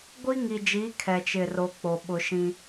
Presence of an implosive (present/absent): present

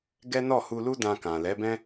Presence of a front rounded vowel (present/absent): absent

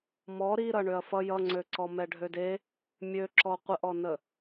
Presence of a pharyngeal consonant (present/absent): absent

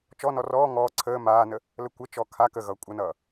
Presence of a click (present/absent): present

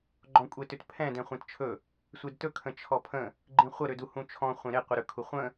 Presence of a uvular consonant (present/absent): present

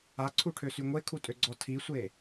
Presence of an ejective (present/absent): present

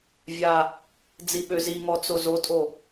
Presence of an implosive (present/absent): present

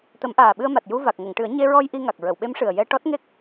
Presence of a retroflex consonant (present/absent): present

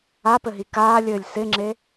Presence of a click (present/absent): present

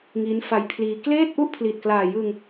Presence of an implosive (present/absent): absent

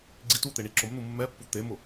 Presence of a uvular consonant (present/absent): absent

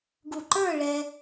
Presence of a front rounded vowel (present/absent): absent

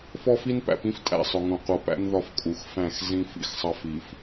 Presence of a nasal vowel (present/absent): present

